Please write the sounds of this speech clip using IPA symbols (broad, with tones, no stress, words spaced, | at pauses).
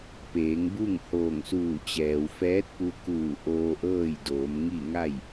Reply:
peː˩˧ŋbu˥˨ŋ hoː˧˩ŋsuː˧˩t͡ɕɛː˩w fɛː˧˥t̚pu˧kuː˧˩ ʔoː˧ʔɤː˥˨j doː˩˧mŋi˥˨ ŋa˥˨j